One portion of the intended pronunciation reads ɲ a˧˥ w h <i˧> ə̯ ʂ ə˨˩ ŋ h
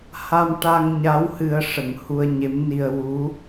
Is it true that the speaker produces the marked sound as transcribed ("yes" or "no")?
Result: no